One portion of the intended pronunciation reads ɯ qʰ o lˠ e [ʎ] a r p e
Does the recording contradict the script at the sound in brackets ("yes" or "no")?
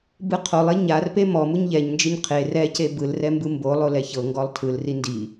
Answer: yes